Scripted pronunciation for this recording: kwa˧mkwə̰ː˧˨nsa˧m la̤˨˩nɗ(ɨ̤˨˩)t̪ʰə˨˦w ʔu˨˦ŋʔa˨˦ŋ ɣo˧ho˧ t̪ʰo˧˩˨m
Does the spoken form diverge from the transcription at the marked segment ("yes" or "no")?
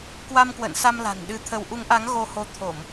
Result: yes